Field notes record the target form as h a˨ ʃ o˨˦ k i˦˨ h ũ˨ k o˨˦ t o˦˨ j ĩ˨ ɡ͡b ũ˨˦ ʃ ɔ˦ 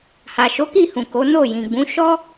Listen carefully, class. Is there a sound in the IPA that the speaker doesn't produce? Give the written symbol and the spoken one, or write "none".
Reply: t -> n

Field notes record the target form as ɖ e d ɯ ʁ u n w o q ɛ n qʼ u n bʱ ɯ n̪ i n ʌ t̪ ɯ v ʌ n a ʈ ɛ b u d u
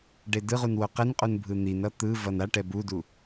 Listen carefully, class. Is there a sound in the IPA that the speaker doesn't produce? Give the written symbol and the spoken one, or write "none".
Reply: none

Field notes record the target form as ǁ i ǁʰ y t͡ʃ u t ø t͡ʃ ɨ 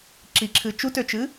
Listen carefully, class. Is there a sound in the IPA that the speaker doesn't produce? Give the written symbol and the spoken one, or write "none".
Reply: y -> ɨ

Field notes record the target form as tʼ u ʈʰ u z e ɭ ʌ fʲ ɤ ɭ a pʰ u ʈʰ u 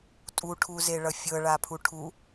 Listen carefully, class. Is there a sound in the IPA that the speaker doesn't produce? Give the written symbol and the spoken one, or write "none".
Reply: none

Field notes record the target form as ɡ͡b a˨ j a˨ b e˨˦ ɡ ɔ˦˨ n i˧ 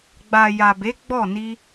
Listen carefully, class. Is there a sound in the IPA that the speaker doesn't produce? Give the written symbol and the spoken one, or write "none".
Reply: ɡ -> ɡ͡b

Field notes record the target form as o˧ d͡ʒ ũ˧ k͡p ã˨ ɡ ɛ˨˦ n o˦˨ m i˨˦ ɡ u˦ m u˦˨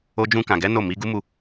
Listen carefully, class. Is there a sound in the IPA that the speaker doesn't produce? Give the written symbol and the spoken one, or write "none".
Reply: k͡p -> k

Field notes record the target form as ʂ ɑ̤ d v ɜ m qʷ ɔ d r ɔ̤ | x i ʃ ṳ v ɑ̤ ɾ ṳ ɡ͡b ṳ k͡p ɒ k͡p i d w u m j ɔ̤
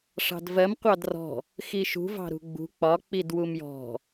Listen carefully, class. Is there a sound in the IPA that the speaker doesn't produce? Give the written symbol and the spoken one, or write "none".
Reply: ɔ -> ɑ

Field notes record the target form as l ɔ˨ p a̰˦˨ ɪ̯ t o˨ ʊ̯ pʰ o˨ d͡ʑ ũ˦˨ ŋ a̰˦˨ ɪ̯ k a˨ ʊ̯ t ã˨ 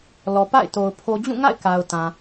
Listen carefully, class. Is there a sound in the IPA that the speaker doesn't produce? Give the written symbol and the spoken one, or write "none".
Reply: none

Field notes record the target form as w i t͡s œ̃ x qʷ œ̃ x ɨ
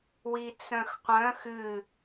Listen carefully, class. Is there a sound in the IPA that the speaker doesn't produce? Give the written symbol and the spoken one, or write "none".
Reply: none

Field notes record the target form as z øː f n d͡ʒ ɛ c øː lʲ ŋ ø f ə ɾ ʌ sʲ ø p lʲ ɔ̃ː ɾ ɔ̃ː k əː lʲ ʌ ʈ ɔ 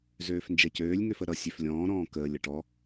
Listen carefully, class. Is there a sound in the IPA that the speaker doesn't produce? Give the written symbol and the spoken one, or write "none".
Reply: p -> f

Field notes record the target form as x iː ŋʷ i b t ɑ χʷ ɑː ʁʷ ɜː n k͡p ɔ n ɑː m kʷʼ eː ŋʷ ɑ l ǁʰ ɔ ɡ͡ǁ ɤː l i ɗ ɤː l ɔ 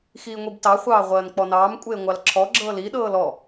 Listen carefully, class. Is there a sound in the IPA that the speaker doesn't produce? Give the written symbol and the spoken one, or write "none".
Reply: none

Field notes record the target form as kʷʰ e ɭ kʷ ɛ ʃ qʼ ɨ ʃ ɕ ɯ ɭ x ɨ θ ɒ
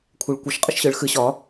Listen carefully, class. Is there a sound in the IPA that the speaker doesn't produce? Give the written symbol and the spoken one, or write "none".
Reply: θ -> ɕ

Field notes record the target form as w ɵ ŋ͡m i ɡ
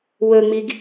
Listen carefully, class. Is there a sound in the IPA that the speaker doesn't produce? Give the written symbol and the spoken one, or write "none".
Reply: none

